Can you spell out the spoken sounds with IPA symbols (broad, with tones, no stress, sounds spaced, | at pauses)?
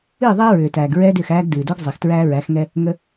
ɨː˦˨ ðˤ ɛː˦ ɹ ʏː˨ t æː˨ ɡ ɹ ɛː˦ d ʏː˦˨ x æː˦ ɡ d ɨː˨ d o˦ ɡ zˤ ɛ˨ x t ɹ æː˦ ɹ æ˨˦ x ŋ ɛ˦ | ŋ ə˦